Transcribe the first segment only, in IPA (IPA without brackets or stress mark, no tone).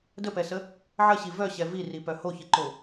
d